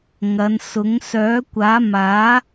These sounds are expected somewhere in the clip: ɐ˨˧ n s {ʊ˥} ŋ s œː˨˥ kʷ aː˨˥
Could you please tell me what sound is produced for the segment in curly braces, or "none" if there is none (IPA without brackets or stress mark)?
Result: ʊ˨˥